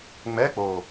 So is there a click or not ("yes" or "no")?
no